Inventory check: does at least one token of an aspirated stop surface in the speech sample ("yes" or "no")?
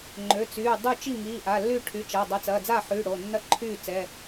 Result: yes